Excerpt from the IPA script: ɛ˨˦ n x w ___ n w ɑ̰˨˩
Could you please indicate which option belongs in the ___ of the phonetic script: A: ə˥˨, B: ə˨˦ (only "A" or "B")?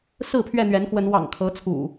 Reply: B